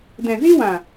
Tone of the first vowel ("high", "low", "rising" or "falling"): low